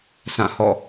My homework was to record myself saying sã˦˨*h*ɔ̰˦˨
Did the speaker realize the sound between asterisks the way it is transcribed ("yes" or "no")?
yes